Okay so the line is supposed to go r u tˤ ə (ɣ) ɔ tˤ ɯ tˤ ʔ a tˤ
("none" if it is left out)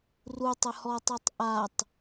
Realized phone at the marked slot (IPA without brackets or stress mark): h